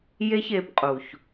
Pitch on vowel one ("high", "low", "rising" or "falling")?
high